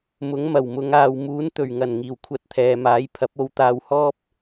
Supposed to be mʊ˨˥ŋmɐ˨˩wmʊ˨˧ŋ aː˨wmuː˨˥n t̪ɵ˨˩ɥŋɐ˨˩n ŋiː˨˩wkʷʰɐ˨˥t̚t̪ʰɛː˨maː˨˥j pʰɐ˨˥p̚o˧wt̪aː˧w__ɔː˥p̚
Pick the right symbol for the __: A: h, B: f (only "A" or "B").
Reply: A